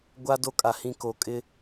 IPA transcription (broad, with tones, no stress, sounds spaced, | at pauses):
ɡʷ a˦ d o˦ kʼ a˨ h ĩ˦˨ k o˨ kʼ ɪ˦